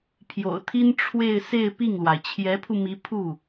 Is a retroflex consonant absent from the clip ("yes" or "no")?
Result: no